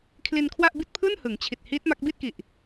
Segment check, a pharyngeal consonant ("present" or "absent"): absent